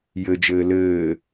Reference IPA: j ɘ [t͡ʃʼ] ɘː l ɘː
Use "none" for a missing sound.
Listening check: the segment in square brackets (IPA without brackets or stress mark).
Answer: d͡ʒ